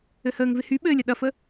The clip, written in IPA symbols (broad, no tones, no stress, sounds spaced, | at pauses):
ɘ h əː ŋ v ɪ h y ɓ ɘː lʲ ɐ ɗ ɐ f ə